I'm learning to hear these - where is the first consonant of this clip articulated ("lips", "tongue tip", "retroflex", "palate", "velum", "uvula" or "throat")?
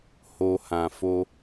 throat